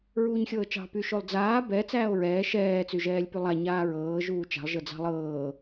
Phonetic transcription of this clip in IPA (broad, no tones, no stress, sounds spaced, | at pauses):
ɹ uː ɲ xʲ ɤː t͡ʃ ɑ̤ p y ʃ o lˠ d͡z aː b ɛ t͡s æː o̯ ɹ ɛː ʃ ɛː t͡s y ʒ ɛː lʲ p y lˠ a ɲ aː ɹ ɤː ʒ uː t͡ʃ a̤ lˠ ʒ ɤ d͡z ɑ̤ lˠ ɤː